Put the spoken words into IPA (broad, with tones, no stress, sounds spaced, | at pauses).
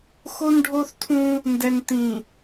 x o˦ n ɖʱ o˦ θ tʰ ũ˦ | n d ɛ˨ n t̪ ĩ˨